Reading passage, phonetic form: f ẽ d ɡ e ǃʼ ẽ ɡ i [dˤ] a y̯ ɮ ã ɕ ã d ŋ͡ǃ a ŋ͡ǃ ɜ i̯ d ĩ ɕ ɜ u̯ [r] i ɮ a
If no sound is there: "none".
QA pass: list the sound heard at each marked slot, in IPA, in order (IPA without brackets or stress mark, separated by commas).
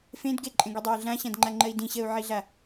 dˤ, ʕ